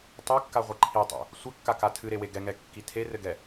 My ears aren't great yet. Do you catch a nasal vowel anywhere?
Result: no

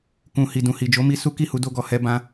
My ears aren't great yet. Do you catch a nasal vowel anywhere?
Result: yes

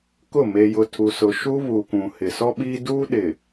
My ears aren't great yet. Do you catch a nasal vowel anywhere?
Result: yes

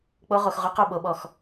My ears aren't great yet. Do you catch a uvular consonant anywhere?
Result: yes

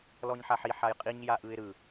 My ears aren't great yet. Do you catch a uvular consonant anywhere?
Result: yes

